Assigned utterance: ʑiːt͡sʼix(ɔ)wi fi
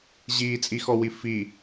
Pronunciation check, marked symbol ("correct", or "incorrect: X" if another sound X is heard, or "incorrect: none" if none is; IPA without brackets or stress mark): correct